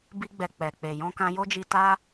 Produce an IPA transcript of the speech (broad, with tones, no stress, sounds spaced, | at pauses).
b i˧ ɡ͡b ɛ˨ k͡p ɛ˨ k͡p e˨ j ɔ̃˧ k ã˧ j o˦ d͡ʒ i˧ t a˦